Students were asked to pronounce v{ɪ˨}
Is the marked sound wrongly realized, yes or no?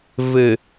yes